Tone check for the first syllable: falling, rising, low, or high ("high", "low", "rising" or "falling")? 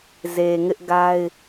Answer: low